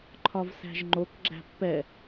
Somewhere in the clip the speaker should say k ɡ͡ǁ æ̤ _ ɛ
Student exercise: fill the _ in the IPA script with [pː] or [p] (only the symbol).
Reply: pː